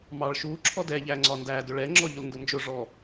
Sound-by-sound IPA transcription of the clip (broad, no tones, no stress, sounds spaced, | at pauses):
m ɑ ɭ ʃ u ǁʰ ɔ d ɛ ʎ æ ŋ͡ǀ ɒ n d æ d ʊ ɭ ɛ ŋ͡ǁ ɔ ʎ ʊ l n d ʊ n d͡ʒ ʊ ʐ ɔ